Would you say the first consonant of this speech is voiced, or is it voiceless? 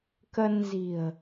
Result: voiceless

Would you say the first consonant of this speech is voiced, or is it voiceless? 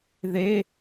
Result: voiced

